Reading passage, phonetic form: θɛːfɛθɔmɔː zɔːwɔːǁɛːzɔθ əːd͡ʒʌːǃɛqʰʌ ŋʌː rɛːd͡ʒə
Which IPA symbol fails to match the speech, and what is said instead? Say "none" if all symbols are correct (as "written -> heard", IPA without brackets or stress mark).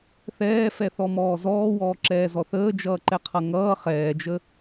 r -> χ